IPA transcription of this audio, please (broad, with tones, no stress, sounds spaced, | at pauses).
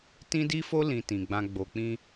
t ĩ˦ d i˦ f o˦ l ĩ˧ t ĩ˨ ɡ͡b ã˧ ɡ͡b o˧ k͡p ĩ˦